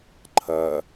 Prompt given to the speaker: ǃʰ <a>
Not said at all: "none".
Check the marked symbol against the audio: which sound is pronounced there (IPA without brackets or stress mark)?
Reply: ɐ